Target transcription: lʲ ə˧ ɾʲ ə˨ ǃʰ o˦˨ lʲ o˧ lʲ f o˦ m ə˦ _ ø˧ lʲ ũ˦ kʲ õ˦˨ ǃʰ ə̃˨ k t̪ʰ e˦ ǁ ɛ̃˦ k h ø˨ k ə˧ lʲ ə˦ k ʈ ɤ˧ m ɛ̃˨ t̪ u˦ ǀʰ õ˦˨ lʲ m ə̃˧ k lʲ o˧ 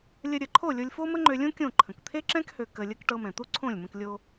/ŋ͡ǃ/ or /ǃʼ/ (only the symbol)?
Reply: ŋ͡ǃ